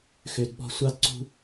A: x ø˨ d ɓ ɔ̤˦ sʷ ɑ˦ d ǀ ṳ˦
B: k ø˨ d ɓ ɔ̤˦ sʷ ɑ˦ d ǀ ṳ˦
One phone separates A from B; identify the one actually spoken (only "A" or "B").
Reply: A